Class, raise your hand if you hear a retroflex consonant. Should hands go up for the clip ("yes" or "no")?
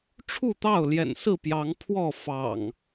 yes